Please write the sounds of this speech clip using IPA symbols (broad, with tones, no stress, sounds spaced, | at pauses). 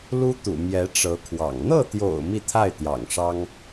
l u˥ t̪ ṵ˨˩ m j ɛ˧˥ ʈ͡ʂ ɤ˧˥ kʰ w ɑ̰˨˩ ŋ n̪ ɤ˥˩ t̪ j o̰˨˩ ʊ̯ m i˥˧ t̪ʰ a˥˩ ɪ̯ t̪ j ɑ̰˨˩ ŋ ʂ ɑ˥ ŋ